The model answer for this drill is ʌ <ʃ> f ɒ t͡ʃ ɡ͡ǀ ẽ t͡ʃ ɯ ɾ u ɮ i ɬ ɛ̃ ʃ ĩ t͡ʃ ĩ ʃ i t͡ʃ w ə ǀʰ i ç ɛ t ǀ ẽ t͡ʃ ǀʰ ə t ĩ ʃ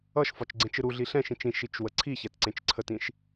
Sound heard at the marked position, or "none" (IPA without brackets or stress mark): ʃ